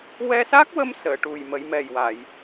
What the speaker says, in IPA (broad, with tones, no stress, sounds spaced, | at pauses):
w ɛ˧ s a˦˥ k̚ w ə˧ m s əː˨˩˨ ʈ u˨˩ j m ə˨˩˦ j m ɛ˨˩ j w a˨˩˨ j